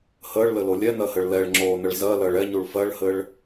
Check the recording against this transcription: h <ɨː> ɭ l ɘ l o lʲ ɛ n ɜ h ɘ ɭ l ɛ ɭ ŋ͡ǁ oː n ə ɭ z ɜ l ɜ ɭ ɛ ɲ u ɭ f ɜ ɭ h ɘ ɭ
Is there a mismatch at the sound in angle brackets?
yes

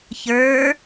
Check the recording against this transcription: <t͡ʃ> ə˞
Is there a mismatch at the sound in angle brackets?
yes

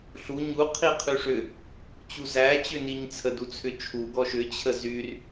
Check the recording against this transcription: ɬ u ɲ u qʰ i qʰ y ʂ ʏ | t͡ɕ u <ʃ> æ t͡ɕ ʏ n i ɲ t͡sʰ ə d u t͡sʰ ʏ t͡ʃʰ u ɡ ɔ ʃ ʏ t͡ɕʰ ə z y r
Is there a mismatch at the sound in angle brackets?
yes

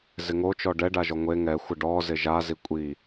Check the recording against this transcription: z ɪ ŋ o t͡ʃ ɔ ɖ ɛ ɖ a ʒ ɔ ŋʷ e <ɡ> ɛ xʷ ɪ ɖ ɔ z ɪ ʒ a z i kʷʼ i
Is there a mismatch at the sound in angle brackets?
yes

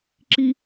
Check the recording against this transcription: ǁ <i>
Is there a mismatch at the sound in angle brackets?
no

